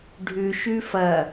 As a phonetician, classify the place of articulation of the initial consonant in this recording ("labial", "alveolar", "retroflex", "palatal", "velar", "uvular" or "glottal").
retroflex